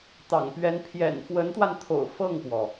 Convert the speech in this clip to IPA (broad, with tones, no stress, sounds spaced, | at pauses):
t̪ ɑ̰˨˩ ŋ p ɥ ɛ˧˥ n pʰ j ɛ̰˨˩ n f w ə˧˥ n t̪ w a˧ n t̪ʰ o̰˨˩ ʊ̯ f ɤ˥˩ ŋ p w ɔ˩